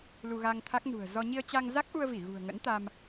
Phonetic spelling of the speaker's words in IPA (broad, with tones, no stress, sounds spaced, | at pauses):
l u˧ ɣ a˧ ŋ t̪ʰ a˦˥ k̚ n ṳ˨˩ ə̯ z ɔ˧ ɲ i˧ ə̯ t͡ɕ a˧ ŋ z a˦˥ k̚ ʔ u˧ ə̯ v i˧˩ ɣ ṳ˨˩ ə̯ ŋ ə̰˧˥ n t̪ a˧ m